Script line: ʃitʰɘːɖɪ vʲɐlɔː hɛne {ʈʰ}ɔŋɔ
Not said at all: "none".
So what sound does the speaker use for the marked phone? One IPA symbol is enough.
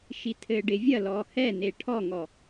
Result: ʈʰ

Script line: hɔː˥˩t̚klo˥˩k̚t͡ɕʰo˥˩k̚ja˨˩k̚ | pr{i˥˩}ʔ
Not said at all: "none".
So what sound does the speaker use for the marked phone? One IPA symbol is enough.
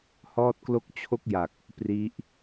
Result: i˦˥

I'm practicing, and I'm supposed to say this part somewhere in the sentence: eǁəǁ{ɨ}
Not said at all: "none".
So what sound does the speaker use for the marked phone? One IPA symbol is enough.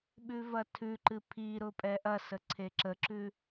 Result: ʉ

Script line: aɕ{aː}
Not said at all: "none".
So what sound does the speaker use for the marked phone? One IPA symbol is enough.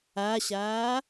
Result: aː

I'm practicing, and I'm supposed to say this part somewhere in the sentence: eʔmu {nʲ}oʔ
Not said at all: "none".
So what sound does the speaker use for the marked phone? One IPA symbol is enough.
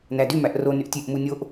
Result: nʲ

